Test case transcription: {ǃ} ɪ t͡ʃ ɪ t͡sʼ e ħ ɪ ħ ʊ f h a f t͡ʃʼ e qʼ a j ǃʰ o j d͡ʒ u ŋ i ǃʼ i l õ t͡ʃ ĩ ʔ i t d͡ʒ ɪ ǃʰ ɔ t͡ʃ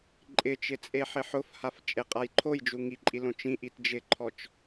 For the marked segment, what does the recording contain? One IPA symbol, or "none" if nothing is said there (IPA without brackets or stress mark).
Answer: ǃʼ